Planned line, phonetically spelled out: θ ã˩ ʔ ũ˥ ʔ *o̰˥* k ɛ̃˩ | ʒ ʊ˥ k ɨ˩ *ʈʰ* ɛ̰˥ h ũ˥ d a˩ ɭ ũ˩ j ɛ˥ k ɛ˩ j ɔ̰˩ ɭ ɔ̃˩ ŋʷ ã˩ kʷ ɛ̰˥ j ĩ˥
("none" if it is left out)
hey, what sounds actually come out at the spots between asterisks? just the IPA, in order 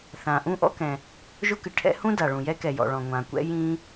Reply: ɔ̰˥, ʈʰ

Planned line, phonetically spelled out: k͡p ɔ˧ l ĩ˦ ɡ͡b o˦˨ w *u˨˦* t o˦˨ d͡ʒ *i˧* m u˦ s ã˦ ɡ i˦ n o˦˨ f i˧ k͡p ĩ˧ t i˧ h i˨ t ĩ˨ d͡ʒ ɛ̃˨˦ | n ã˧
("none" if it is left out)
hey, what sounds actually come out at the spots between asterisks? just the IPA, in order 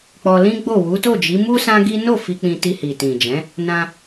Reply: u˨˦, i˨˦

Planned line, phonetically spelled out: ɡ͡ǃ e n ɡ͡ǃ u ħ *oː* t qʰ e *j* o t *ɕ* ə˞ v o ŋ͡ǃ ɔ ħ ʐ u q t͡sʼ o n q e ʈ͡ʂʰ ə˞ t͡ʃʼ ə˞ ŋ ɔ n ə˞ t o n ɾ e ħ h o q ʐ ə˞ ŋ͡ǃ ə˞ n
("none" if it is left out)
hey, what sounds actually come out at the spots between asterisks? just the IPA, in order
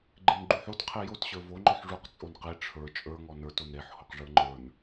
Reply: o, j, ɕ

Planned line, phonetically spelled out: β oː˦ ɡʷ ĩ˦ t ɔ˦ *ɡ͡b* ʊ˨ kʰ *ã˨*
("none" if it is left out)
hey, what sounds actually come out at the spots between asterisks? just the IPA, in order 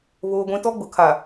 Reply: ɡ͡b, a˨

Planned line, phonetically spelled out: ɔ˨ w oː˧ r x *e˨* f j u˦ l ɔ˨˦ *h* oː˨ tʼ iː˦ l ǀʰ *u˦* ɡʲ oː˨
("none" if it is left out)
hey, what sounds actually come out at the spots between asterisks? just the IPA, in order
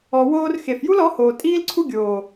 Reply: e˨, h, u˦

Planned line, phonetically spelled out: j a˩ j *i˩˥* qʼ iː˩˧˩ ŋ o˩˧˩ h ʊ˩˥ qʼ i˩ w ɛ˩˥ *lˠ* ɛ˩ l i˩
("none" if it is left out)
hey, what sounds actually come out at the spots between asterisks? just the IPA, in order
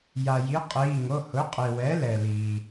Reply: i˩˥, l

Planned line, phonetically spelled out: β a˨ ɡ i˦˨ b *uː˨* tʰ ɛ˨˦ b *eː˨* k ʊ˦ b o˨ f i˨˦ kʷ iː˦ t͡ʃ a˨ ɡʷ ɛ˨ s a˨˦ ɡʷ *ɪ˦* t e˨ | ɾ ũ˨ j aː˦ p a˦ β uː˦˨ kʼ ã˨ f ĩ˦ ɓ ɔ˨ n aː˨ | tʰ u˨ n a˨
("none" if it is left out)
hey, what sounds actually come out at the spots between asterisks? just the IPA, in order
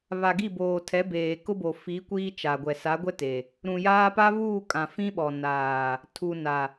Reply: oː˨, eː˨, ɛ˦

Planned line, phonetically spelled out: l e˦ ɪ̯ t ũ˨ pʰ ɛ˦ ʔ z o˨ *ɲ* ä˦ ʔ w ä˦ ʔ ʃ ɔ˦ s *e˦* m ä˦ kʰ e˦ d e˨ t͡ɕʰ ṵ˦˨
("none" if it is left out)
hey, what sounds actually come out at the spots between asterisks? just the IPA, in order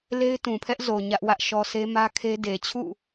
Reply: ɲ, e˦

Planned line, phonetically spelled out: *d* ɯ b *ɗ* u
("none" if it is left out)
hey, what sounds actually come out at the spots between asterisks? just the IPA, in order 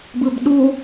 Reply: b, ɗ

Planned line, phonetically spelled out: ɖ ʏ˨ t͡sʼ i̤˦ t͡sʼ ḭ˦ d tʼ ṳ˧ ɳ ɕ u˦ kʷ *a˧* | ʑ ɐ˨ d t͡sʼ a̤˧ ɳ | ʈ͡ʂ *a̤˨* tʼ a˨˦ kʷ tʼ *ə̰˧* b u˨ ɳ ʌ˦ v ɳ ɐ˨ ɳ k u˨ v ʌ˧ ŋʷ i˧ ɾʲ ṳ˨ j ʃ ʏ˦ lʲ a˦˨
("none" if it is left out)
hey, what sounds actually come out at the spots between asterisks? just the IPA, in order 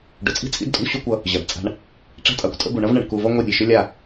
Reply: ʌ˧, a̤˦, ə̰˧

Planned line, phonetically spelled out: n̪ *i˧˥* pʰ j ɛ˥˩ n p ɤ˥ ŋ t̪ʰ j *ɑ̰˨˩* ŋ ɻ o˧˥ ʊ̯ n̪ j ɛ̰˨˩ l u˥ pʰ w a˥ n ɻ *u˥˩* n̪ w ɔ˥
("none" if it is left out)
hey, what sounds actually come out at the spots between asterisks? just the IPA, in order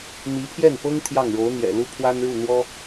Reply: i˧˥, ɑ˥˩, u˥˩

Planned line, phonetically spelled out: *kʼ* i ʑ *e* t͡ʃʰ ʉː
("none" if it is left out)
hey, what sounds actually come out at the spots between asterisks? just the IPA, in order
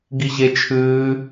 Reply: ɡ, e

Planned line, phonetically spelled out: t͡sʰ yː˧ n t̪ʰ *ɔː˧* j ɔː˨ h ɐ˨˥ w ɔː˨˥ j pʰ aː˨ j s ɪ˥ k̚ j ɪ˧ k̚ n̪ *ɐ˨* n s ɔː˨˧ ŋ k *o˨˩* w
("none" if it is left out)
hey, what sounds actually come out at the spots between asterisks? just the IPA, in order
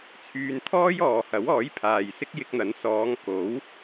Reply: ɔː˥, ɐ˨˥, o˨˥

